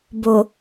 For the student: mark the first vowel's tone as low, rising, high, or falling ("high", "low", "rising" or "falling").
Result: low